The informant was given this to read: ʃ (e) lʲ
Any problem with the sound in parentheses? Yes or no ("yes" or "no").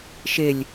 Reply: no